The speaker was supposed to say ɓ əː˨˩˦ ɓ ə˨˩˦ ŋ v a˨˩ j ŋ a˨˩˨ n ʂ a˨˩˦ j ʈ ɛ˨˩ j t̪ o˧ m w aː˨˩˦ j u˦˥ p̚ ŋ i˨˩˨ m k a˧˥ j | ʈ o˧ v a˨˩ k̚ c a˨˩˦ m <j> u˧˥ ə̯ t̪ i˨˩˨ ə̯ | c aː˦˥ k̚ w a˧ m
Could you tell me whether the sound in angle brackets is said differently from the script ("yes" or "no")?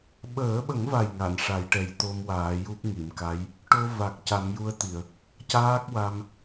no